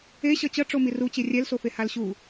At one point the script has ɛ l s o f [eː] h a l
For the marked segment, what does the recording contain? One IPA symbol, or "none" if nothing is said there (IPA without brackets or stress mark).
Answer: e